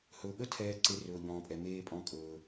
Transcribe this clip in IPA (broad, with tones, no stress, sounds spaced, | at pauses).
h ɵː˩ ɠ ə˥ tʰ ɛː˨ ǀ e˨ r ɵː˩ ʎ ɔ̃ː˩ pʼ ɛ˩ m eː˨ pʼ ɔ̃˨ kʼ ɵː˩